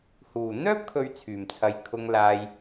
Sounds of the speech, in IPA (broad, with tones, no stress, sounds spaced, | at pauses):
h uː˨˩ n̪ œː˥ p̚ kʰ ɵ˨ ɥ t͡sʰ yː˨˩ m t͡sʰ ɐ˨ j kʰ ʊ˨ ŋ l aː˨ j